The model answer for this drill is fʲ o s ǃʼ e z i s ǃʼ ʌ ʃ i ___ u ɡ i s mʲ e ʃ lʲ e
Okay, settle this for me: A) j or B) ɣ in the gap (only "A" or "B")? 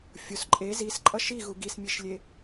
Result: B